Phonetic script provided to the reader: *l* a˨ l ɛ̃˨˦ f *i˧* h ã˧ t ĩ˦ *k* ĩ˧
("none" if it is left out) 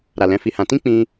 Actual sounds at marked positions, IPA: ɾ, i˧, k͡p

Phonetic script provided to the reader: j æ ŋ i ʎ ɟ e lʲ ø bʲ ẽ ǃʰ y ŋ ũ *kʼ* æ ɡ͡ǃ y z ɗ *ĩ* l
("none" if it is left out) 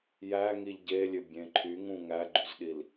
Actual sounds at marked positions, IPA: ŋ, i

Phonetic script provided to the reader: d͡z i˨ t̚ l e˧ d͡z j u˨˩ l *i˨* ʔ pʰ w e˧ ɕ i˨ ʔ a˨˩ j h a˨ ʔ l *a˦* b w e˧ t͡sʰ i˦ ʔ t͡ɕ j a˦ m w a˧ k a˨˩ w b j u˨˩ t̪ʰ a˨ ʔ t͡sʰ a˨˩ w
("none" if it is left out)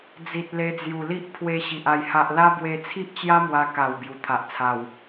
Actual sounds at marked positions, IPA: i˦, a˦

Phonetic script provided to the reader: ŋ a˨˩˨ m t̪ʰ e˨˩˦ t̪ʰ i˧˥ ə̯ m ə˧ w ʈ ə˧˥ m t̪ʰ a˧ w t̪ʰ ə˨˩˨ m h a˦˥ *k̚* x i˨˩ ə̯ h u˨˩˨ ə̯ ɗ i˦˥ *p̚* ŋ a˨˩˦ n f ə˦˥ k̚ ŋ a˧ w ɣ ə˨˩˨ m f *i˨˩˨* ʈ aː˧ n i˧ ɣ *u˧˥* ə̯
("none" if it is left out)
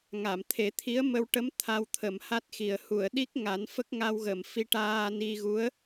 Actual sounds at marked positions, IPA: t̚, k̚, i˧, u˧˥

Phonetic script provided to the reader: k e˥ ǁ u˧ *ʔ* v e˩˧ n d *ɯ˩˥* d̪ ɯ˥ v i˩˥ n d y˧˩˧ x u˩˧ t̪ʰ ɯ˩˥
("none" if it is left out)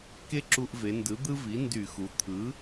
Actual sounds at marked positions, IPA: ʔ, ɯ˩˥

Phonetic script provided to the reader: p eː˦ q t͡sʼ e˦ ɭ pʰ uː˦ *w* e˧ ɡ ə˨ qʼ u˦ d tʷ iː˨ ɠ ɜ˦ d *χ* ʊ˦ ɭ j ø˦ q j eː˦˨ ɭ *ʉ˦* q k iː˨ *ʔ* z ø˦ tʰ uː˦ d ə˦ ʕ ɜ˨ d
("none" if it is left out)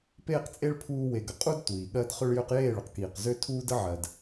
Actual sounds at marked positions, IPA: w, χ, ʊ˦, q

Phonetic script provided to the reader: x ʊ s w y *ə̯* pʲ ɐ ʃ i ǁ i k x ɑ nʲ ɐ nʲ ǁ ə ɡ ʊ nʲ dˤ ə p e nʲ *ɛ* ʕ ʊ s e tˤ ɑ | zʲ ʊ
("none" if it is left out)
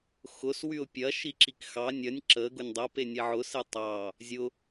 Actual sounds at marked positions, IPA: ʊ̯, e

